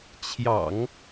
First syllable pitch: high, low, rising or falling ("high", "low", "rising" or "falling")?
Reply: low